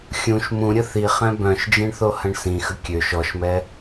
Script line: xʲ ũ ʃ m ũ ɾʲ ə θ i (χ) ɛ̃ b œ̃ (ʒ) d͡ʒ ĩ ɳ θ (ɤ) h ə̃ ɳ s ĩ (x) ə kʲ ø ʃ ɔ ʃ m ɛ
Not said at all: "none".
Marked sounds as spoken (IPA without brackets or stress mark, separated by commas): χ, ʃ, o, x